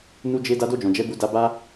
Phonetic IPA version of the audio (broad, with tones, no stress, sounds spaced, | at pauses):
n u˧ d͡ʒ e˧ d a˧ d o˧ d͡ʒ ɔ̃˨ d͡ʒ ɛ˨˦ b u˧ d a˧ b a˦